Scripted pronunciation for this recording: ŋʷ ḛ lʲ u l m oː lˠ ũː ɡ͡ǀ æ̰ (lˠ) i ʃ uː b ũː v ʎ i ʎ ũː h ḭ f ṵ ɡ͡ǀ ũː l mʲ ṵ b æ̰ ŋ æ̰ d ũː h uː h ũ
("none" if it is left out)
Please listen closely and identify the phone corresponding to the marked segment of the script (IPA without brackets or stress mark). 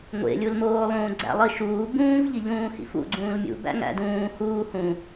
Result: lˠ